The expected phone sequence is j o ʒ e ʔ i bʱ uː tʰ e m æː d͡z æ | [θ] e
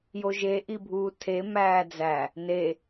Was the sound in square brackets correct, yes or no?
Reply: no